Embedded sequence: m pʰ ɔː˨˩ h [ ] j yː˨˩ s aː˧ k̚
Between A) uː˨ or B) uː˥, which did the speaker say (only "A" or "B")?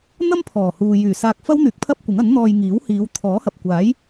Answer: A